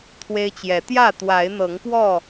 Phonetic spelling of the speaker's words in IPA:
t̪ʰ w e˦ ɪ̯ t͡ɕ j ɛ˨˦ t̪ j ä˥˨ t̪ w a˨˦ ɪ̯ n̪ ɤ˨˦ ŋ p w ɔ˥˨

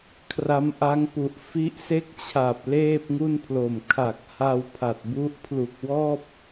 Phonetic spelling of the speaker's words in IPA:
kʰ r a˦˥ m ʔ a˦˥ ŋ p u˨˩ ʔ f i˦˥ ʔ s e˥˩ k̚ t͡ɕʰ a˨˩ p̚ l eː˥˩ p̚ ŋ u˥˩ n pʰ l o˨˩ m kʰ a˨˩ k̚ h a˧ w pʰ a˨˩ t̚ b u˦˥ ʔ pʰ l u˨˩ k̚ w ɔː˥˩ p̚

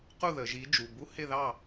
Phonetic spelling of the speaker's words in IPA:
q u˥˩ ð ə˩˧ ʒ i˨˥ d͡ʒ u˩˧˩ b u˧˥˧ h ɪ˥˩ ð ɑ˥˩

